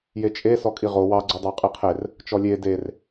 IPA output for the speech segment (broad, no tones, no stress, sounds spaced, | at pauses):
j e t͡ʃʼ e s ɔ kʼ i ʁ o w ɑ ɡ͡ǀ u dˤ ɑ qʼ i qʰ e r | t͡ʃ ɔ lʲ e d e r